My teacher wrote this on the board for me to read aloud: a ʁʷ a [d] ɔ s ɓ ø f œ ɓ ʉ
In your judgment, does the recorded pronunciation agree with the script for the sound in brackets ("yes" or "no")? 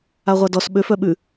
yes